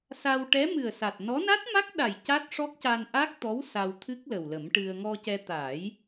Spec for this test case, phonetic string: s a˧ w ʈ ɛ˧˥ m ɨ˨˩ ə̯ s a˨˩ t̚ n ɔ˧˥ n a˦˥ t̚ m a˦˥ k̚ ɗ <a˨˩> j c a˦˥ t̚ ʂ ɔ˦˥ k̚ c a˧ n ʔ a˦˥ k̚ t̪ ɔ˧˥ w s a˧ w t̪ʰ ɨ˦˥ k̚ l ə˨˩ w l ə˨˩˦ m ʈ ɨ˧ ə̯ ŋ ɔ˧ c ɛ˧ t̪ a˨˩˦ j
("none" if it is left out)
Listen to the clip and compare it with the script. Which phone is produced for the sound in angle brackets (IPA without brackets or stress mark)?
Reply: a˨˩